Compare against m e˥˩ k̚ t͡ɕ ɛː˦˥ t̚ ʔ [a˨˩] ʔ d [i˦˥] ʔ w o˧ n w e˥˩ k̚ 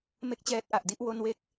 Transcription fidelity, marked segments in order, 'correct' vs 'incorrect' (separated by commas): correct, incorrect